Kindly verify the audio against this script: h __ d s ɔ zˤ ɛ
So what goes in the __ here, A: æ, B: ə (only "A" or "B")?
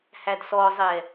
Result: A